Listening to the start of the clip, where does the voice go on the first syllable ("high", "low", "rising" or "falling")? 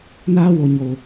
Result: high